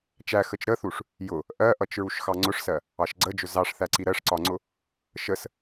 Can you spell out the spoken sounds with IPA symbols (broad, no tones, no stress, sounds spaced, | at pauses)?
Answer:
t͡ʃ æ x ə t͡ʃ ɾ ə θ u ʂ | j ʊ | ʔ ɜ ʔ ʌ t͡ʃ ɹ u ʃ x ɑ ŋ͡ǀ ʊ ʂ s ɜ | ɑ ʃ ɡ͡ǀ ə d͡ʒ ʊ z ɑ ʂ θ æ ǀ i ɾ ɜ ʂ ǀ ɒ ŋ͡ǀ ʊ | ʃ ə s